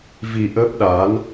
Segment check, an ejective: absent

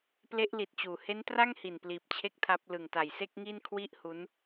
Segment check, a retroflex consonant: absent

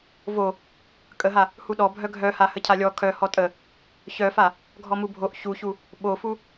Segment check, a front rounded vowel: present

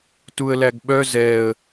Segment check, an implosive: present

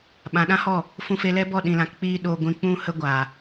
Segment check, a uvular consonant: absent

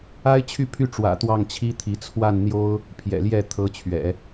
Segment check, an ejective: absent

